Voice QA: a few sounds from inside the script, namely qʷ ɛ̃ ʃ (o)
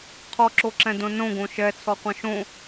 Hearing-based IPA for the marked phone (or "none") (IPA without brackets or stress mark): õ